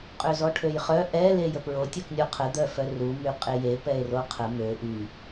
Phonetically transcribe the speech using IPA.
qʼ ø z ɔ ʈʰ ø j χ œ ʔ ɛ l e j ə p ɹ o tʲ œ k nʲ o qʰ ə d̪ œ f œ r u m y qʼ e j e p ɛ e̯ r o qʰ ə m ø ʔ y

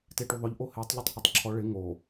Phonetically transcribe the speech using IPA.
t e ʈ u ðˤ ʊ ʎ ʔ o h e tˤ ʎ ʊ tˤ h ɔ tˤ ǁʰ ɔ ɭ ɪ ŋ o

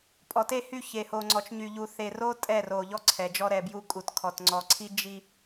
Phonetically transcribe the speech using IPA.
pʼ ɔ˨ t e˦˨ h y˦˨ ç e˨ h o˨ ŋ͡ǀ ɔ˨ t͡ʃ ɲ y˨ ʎ u˨ θ e˨ r o˦ tʼ ɛ˦˨ r o˨ ʎ ɔ˦ ǀʰ ɛ˨ d͡ʒ ɔ˦ ɾ ɛ˨ b j u˦ kʼ u˨ t kʰ ɔ˨ t ŋ͡ǀ ɔ˨ ǀʰ i˦ d͡ʒ i˨

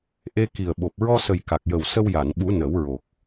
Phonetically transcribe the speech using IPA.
ʔ e˧ k i˨˩ ə̯ ɓ o˨˩ p̚ ɹ ɔ˧ s ə˨˩ j k a˨˩ k̚ j ə˨˩ w s ə˧ w j a˨˩˨ n ɓ u˨˩˦ n ə˨˩˦ w ɹ o˨˩ k̚

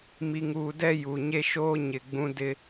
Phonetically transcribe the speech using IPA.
m i˨ ŋ uː˨ d ɛ˦˨ j u˨ ɲ e˦ ʃ oː˦ ɲ ɪ˨ ɡ͡b ũ˦ d ɪ˦

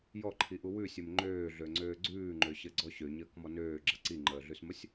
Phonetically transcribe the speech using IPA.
j ɔ ǃʰ i ʔ u w ʉ sʲ ɘ m ŋ͡ǃ øː ɮ ø ŋ͡ǀ øː ɡ͡ǀ ʉː ŋ͡ǃ ø ɕ ɘ ɡ͡ǀ ɔ ɕ ø ɲ əː k m ɔ n øː ɡ͡ǁ ə ǀ i ŋ͡ǃ əː ɮ ʉ s m ə sʲ

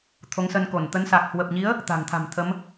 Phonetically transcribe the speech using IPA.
t̪ʰ o˨˦ ŋ s ə˧ n k o˧˩ n t̪ ə˨˦ n s a˨˩ k̚ h w ə˨˩ p̚ ɲ i˨˦ ə̯ | t̪ a̤˨˩ ŋ t̪ʰ a̤˨˩ m t̪ʰ ə˨˦ m

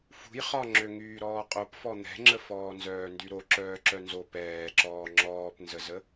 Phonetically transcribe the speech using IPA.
f ṳ j χ ɒ ŋ͡ǁ ø ŋ yː ɾ ɔː qʼ o p f ɔ n̪ ɛ̤ ŋ͡ǁ ə f ɔː n z œː n d y ɾ o ǁ œː ǁ œ n z o p ɛː ǁ ɔː ŋ͡ǁ ɔː p n z ə z ə

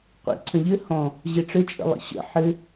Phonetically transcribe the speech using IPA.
qʷ ḭ ǀʰ ə̃ ʎ ɘ h ɔ̃ | ʑ e ʈ͡ʂ ɘ t͡ʃʼ ə̰ lˠ ḭ ɕ ə̰ ħ ɘ

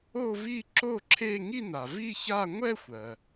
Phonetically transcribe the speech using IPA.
o˥˧ v i˥˧ ǁ o˥˧ ǁʰ e˥˧ ŋ i˥˧ n a˩ v i˥˧ ç a˥˧ ŋʷ ɛ˥˧ xʷ ɜ˩

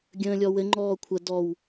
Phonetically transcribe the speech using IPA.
ɡʲ ə̃ː lʲ ɔ w ɘ ŋ͡ǃ ɔː kʷʰ ə d ɔ w

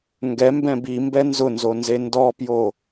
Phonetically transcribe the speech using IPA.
ŋ ɡ ɛ m b ɛ̃ b i m b ɛ n z ʊ n z o n z e n d ɔ p j o

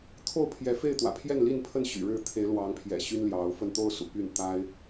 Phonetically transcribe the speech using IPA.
t̪ʰ o˥˨ ʊ̯ pʰ j ɛ˨˦ f e˥˨ ɪ̯ t̪ w ä̰˨˩ pʰ j ɛ˥˨ n l i˥˨ n pʰ ə˥˨ n ɕ y̰˨˩ ɻ ɻ̩˥˨ t̪ʰ e˨˦ ɪ̯ l w ɑ˨˦ ŋ pʰ j ɛ̰˨˩ ɕ y˦ n l j ɑ˨˦ ʊ̯ f ə˥˨ n t̪ o˥˨ ʊ̯ s ṵ˨˩ p y˥˨ n t̪ a˦ ɪ̯

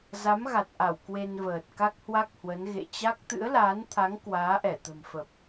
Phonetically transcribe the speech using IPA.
z a˨˦ m ɣ a˨˩ t̚ ʔ a˧˩ w k w e˧ n v əː˨˩ t̚ k a˦˥ k̚ h w a˦˥ k̚ h w ə˨˦ n ɣ ḛ˧˨ t͡ɕ a˦˥ k̚ t̪ ɨ̰˧˥ ə̯ l aː˨˦ n t̪ʰ a˨˦ ŋ k w aː˨˦ ʔ ɛ˧˩ t̪ ə̤˨˩ m f ə˨˩ p̚

